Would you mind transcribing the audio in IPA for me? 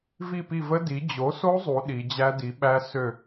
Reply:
v i˦˨ p i˦˨ v ə˦˥ d i˩˥ d͡ʑ o˩˥ s o˦˥ zˤ u˩˧ ɗ i˩˧ d͡ʑ æ˦˥ d i˩˥ ɓ æ˦˥ s ø˦˨

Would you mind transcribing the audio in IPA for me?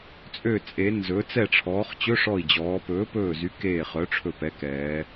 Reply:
t͡sʼ ø˧˩ t͡sʼ e˩˧ n z ɵ˩˧ t͡s ɛ˧˩ ʈ͡ʂʰ ɔː˩˧ χ t͡ɕ ɵ˧˥˧ ʂ ɔ˧˩ i̯ d͡ʑ ɔː˩˧ p ɵː˨˥ p ɵː˧˩ z y˨˥ k eː˧˩ χ œ˨˥ ʈ͡ʂʰ ɵ˧˩ p ɛ˨˥ k ɛː˩˧

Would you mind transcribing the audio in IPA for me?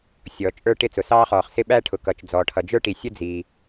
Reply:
sʲ ɔː˩ t͡ʃʼ ə˞˥ ʈ ɪ˥ t͡s ʊ˩ s ɑː˥ χ ɔː˩ χ s ɪ˥ ɓ æ˥ ʈʰ ʊ˩ k ʌ˩ t͡ʃ d͡z ɔː˩ ʈʰ ʌ˩ d͡ʒ ə˞˥ ʈ i˩ sʲ ə˥ d͡z iː˩

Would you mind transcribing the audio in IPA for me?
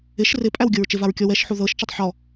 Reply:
ɪ ʃ r ɪ pʼ æ w ɡʲ ɤ ɹ t͡ʃ ɪ v a ɹ kʲ ɔ w ɛ ʃ ħ u ð ɤ ʃ t͡ʃ ɤ tˤ ħ ɔ

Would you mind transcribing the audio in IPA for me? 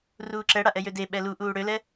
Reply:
r uː ǁ ɛ ɽ a ʔ ɛ j ø d e ɓ ɛ l u ʔ uː ɽ ø l ɛ

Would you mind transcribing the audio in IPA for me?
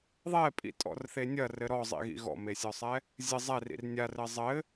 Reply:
ðˤ ɛ pʼ ḭ tʼ ɔ̰ r θ e nʲ ɐ r ɘ ɾ ɔ zˤ ḭ ɣ ḭ ɣ ɔ̰ m e sʲ ɔ sˤ ɛ | zʲ ɘ zˤ ɛ r ḭ r nʲ a r ɘ zˤ ɘ

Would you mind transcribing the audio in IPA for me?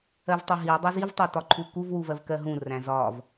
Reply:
ɜ v tˤ ʊ ɦ i w dˤ u z i v tˤ æ t ɒ ǃʰ u k u v w u v ɜ v k ɜ ɦ ũ r æ̃ z ɒ v

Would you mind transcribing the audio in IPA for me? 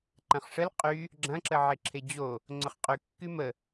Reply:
ǃ ɐ̃ χ ʂ ə l qʼ y | ɡ͡ǁ ɐ̃ ǁ ə ʕ e ǁʰ e d͡ʑ o | ŋ͡ǀ ʊ χ qʼ y kː y m ə

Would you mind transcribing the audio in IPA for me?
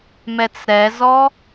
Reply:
m ɛ t͡s ɾ ɛ z ɔ

